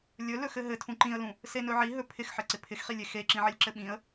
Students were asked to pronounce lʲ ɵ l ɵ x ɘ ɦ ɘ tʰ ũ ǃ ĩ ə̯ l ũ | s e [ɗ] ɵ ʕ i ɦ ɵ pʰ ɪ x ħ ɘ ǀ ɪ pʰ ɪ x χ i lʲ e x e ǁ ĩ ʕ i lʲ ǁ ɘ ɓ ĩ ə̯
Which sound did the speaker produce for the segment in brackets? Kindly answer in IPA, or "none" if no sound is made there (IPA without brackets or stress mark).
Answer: n